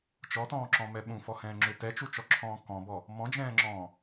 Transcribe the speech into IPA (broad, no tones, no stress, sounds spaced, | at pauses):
t͡ʃ ɔ t ɔ̃ː ǁ ɔ̃ m ɛ ɓ ũ f ɔ h ɛ̃ː ŋ͡ǁ ʏ t ɛ t͡ʃ u t͡ʃ ɔ ǁʰ ɔ̃ː k ɔ̃ b ɔ | m ɔ̃ d͡ʒ ɛ̃ː ŋ͡ǁ ɔ̃ː